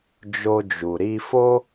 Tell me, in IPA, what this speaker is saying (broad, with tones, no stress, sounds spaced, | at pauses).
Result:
d͡ʒ o˧ d͡ʒ u˨ ɾ i˧ f o˦